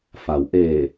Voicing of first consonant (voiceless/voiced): voiceless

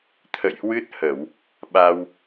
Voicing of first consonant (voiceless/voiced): voiceless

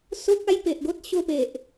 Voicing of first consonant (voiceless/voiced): voiceless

